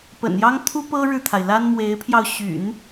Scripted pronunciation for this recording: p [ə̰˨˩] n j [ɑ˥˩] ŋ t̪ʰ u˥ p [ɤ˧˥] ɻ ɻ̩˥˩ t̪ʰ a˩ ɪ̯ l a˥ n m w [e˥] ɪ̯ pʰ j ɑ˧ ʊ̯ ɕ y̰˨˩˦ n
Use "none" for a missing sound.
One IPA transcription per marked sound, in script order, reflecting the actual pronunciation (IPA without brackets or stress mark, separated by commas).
ə̰˨˩, ɑ˥, ɤ˥, e˧˥